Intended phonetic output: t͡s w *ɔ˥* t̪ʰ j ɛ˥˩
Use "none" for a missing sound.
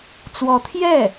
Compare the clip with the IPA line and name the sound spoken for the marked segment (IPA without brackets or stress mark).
ɔ˧˥